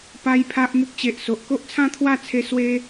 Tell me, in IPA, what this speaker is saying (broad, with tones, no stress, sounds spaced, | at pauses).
p a˦ j pʰ a˦ ʔ m u˦ k̚ t͡ɕ e˨ ʔ s o˨ ʔ k o˦ ʔ t͡sʰ ã˥˧ t̪ʰ w a˥˧ t͡sʰ e˧ s w e˦